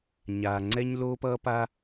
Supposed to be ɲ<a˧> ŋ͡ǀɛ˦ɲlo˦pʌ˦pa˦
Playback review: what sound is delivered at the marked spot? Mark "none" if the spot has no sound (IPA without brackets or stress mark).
a˨